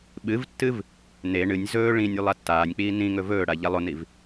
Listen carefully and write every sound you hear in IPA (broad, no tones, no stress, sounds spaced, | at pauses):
ɓ ɨ v tː ɨ v | n e ɳ ɨ nʲ z ɵː ɭ ĩ nʲ ʉ lˠ a tː aː nʲ k͡p iː n ĩ ŋ ɵ v ɵː ɽ a ʎ a lˠ o n i v